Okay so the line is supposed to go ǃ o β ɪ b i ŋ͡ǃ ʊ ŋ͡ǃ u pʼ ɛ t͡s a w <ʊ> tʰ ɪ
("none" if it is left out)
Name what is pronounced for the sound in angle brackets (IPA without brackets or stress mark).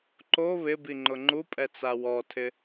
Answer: ɔ